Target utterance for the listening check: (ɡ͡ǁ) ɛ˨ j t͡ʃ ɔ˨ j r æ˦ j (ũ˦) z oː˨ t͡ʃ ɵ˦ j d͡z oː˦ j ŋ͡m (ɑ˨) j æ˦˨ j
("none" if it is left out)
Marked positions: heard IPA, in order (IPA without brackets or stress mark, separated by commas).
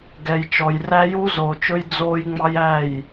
ɡ, u˦, ɑ˦